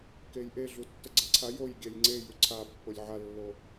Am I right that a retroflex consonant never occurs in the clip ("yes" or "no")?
yes